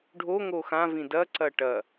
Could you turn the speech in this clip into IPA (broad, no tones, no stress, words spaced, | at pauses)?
ɖʱo ŋoxã vĩdɐ ǀɐʈɐ